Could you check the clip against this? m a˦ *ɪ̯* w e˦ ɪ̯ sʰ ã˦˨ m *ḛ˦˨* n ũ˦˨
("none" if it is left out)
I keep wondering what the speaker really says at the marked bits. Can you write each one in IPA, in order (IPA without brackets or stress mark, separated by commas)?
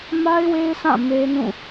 ɪ̯, e˦